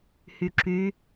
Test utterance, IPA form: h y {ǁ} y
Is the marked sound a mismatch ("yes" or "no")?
no